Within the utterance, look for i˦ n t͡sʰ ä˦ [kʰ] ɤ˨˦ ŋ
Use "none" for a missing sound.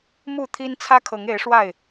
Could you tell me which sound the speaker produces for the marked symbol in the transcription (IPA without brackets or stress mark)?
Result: kʰ